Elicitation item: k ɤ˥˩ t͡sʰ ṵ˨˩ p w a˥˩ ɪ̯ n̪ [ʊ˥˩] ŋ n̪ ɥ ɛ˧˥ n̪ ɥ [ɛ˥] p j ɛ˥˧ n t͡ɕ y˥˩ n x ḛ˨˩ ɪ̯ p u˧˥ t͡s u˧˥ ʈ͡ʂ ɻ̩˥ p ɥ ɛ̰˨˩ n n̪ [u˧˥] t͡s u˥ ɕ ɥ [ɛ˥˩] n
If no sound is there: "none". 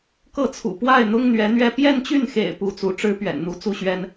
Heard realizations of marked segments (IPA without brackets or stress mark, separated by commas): ʊ˥, ɛ˥˧, u˧˥, ɛ˥